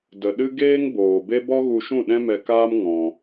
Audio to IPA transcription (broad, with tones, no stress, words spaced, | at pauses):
də˨ɗɨ˦ ɡeː˦ŋboː˨be˦ bɔ˦ɣu˧ʃũ˦˨ɗɛ̃˦ mɛ˧kaː˦m ŋɔ̃˧